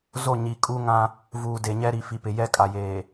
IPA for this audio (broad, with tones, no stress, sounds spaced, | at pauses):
z o˦˨ ɲ i˨ kʼ u˦ ŋ ã˦ | v uː˨ d e˨ ɲ ɛ˦ ɾ i˨ f i˨ p ɪ˨ j ɛ˦ kʼ a˨ j eː˨